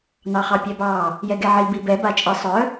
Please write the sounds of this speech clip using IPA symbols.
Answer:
n ɑ χ ɑ pʲ ɛ b ɑ | j ɛ ɡ ɛ ʕ i b i b ɛ b a t͡ʃʼ i sˤ œ

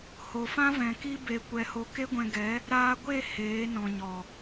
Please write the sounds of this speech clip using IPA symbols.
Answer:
h o˨ f ã˦ v ɛ̃˨ k i˦ b e˧ kʷ ɛ˧ h o˧ k e˦ ɡʷ ɛ̃˧ ɡ ɛ˨˦ | ɾ aː˧ ɡʷ e˦˨ h eː˨˦ n ɔ̃˨ ɲ ɔ˨

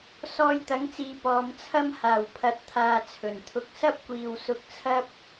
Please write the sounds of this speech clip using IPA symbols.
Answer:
s ɔː˧ j t̪ ɐ˨˥ ŋ t͡s iː˨˧ p ɔː˨˧ m t͡sʰ ɐ˥ m h aː˨˩ w pʰ ɐ˨ t̚ t̪ʰ aː˨ t͡sʰ ɵ˨˩ n t̪ʰ ʊ˧ k̚ s ɐ˥ p̚ kʷ iː˨ w s ʊ˧ k̚ t͡sʰ ɐ˥ p̚

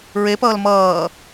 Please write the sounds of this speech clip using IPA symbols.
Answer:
ɹ e p ʌː l m ʌː

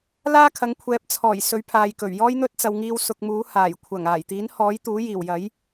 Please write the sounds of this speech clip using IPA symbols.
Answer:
l aː˥ kʰ ɐ˨˧ ŋ kʷʰ ɛː˨˥ p̚ t͡sʰ ɔː˨˩ j s ɵ˨˥ ɥ pʰ aː˨ j k ɵ˨˩ ɥ j ɔː˥ j n̪ ɵ˥ t̚ t͡s ɐ˨ w ŋ iː˧ w s ʊ˨ k̚ m uː˨˥ h aː˨˩ j kʷʰ ɐ˨˩ ŋ aː˨˩ j t̪ iː˨˥ n h ɔː˨˥ j t̪ uː˨˥ j iː˨˩ w j ɐ˨˥ j

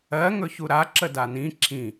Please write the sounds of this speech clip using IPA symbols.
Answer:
ɜ ŋ ɵ ç u ɾ a ǁ ə d a n ĩ ǁʰ ĩ

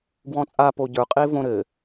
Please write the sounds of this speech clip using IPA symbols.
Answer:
ɡ w ɔ̃ t͡sʼ a p o ɟ ə˞ qʼ e v õ ɾ ɘ

